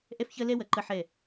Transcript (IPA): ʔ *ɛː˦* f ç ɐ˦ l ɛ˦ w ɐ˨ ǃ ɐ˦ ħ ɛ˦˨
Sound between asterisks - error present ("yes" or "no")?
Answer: yes